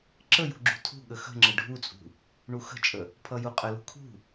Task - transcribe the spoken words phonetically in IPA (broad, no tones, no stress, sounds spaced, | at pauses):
ǁ ə j ṳ ɡ͡ǁ ṳ tʰ ṳ ɠ ə x ə̤ ŋ͡ǁ ə ɖʱ u t͡sʼ ṳ | ɳ u x ə̤ t͡ʃʼ ə | pʰ ʌ j u qʼ ə l ṳ kʰ ṳ